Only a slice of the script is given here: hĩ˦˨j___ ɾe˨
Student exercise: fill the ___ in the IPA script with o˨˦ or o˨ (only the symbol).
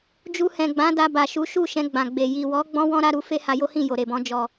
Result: o˨